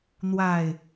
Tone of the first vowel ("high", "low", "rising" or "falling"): low